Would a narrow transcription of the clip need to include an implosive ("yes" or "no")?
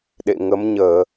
yes